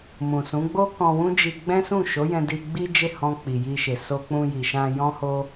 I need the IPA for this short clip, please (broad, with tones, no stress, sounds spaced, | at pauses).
m ũ˨ s ũ˨˦ ɡ͡b o˦ k ɔ̃˧ w ũ˦ d͡ʒ i˧ ɡ͡b ɛ̃˦ s ũ˦˨ ʃ o˨˦ j ɛ̃˧ d i˧ ɡ͡b i˦ d͡ʒ e˦˨ h ɔ̃˧ k͡p i˨ j i˧ ʃ e˨ s o˧ k͡p ũ˧ j i˨ ʃ ã˧ j ɔ̃˦ h o˦